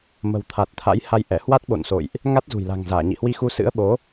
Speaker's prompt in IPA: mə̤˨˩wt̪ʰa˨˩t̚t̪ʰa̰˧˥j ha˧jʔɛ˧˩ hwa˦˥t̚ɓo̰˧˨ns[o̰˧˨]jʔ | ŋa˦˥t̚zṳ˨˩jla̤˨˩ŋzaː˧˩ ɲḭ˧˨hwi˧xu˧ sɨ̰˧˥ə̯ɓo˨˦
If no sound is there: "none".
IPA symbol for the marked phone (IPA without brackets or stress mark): o̰˧˨